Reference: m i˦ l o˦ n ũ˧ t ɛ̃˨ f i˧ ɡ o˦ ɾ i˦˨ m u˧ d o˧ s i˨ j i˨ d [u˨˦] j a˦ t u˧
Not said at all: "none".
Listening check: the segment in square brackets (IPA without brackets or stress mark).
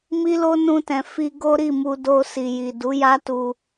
u˨˦